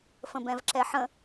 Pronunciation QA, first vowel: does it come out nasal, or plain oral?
nasal